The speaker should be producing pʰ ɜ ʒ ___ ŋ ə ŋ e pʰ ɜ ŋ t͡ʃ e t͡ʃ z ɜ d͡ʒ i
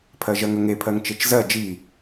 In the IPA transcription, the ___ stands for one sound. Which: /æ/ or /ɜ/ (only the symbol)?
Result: ɜ